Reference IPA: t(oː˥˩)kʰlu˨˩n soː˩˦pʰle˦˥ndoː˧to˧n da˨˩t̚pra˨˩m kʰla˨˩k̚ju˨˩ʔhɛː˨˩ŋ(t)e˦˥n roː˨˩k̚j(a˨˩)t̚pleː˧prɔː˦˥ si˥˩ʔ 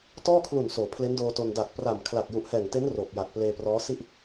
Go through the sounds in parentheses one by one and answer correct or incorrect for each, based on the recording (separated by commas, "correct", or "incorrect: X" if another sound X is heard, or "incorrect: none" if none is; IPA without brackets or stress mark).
incorrect: ɔː˥˩, correct, correct